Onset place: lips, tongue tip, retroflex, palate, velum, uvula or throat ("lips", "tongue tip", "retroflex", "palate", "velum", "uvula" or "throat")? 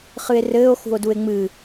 uvula